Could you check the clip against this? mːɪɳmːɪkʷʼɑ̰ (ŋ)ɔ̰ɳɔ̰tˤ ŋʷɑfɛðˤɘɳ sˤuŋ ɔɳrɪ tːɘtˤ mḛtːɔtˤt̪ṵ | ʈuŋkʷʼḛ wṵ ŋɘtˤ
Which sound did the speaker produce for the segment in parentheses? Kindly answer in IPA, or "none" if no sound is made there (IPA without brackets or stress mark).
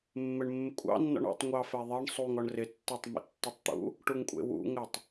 nː